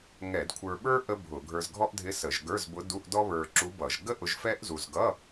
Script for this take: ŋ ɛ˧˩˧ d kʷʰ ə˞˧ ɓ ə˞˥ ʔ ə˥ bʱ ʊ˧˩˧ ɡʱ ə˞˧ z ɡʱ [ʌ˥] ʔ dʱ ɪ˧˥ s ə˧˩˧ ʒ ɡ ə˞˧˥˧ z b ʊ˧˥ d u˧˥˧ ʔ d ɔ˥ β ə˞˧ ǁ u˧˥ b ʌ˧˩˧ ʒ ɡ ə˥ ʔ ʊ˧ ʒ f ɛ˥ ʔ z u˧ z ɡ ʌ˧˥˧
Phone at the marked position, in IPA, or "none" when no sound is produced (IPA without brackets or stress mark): ɔ˥